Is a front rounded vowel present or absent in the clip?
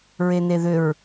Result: present